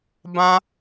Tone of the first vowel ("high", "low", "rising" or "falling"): high